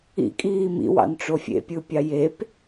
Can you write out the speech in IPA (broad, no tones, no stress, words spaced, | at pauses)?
ḭkʼiː mḭwɑ̰nʈ͡ʂo fʲḛpʲɯpʲɑ jep